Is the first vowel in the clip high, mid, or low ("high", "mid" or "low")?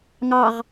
low